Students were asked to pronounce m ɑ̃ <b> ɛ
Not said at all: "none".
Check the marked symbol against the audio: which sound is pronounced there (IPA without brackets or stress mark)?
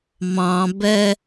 b